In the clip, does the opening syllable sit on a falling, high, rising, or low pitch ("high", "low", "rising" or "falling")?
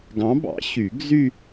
rising